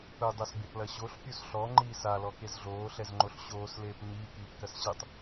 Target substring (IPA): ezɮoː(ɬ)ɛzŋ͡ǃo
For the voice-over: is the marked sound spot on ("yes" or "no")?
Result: yes